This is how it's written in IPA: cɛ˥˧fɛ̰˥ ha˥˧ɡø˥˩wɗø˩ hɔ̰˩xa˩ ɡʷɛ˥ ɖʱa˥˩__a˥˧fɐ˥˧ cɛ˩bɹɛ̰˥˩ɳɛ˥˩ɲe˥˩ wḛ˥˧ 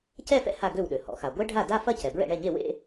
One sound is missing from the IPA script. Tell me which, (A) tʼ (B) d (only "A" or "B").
B